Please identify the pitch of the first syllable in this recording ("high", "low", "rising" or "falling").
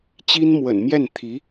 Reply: high